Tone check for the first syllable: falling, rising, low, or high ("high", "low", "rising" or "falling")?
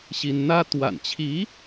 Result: high